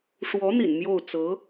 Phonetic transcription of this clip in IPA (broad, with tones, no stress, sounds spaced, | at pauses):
ʂ w ɔ˧˥ n̪ ḭ˨˩ n m j o˥˩ ʊ̯ t͡s ɤ˧˥